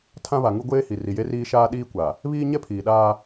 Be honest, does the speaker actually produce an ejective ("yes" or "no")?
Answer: no